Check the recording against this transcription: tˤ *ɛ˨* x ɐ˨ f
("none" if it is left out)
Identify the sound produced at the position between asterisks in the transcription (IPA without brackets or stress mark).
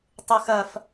ɨ˨